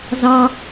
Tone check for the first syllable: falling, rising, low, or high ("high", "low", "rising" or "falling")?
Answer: high